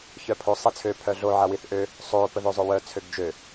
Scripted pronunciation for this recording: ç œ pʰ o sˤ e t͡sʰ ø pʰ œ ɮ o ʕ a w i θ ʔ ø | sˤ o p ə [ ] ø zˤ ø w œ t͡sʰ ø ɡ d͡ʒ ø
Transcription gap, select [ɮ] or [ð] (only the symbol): ð